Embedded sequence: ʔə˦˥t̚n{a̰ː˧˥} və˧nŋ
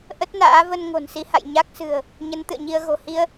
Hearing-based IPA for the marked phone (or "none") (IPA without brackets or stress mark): a̰ː˧˥